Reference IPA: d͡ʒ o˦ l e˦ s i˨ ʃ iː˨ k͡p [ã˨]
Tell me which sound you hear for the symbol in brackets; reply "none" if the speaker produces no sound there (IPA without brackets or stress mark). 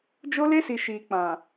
ã˨